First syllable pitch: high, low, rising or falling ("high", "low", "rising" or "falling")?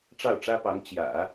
falling